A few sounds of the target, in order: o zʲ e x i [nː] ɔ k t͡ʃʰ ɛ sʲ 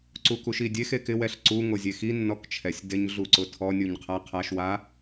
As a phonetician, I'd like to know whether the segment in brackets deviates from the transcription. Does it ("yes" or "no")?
no